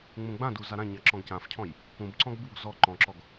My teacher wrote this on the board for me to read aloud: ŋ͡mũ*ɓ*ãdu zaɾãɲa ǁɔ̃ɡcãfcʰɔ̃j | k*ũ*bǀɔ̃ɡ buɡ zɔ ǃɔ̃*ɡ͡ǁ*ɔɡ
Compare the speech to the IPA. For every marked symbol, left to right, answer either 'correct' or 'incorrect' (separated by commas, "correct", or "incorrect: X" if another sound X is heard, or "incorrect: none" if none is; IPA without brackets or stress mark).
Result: incorrect: ɡ͡b, correct, incorrect: ǁ